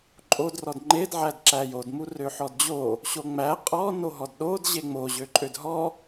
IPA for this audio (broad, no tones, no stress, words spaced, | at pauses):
ǃʼod rɔdŋ͡ǃed ʕædǁæjod murøħɔdd͡ʑo | ɕoŋ͡mæ qʼɔ noɦɔdɗod ʑeŋ͡mo ʑøǃʼødɦɔ